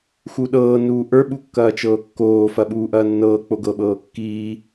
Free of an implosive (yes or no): no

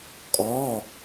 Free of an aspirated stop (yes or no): yes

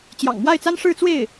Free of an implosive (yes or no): yes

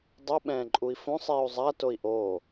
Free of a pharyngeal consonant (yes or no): yes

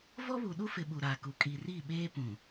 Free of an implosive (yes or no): no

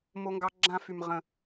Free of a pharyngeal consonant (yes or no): yes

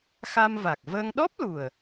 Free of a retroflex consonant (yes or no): yes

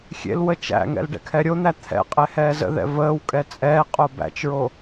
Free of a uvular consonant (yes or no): no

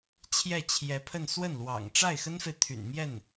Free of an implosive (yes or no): yes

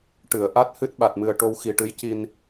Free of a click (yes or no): yes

